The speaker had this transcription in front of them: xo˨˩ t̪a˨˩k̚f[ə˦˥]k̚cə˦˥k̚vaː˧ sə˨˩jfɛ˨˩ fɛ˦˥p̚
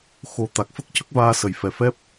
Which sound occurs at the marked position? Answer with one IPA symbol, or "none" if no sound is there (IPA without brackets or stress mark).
ə˦˥